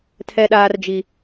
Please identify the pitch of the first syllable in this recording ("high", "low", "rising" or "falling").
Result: high